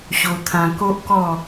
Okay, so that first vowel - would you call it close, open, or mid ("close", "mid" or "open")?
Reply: mid